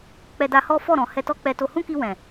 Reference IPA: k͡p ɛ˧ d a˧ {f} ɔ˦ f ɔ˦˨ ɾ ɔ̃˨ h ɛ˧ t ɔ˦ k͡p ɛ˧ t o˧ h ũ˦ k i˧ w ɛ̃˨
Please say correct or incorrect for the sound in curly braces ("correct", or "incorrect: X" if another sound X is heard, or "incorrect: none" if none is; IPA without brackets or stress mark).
incorrect: h